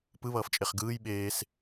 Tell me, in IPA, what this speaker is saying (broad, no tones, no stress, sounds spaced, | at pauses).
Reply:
p ɯ β ʌː f t͡ʃʼ e χ ɡ ɯː j ɓ eː s